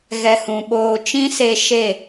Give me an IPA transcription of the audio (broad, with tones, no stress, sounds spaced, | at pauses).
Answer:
ɣ ɛ˧ h ũ˨ ɓ oː˧ t͡ʃ ĩ˦ s e˧ ʃ e˦˨